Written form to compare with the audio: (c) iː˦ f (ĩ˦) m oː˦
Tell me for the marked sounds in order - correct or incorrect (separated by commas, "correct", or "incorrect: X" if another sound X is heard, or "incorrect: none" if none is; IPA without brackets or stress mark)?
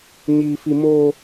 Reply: incorrect: ɲ, incorrect: i˦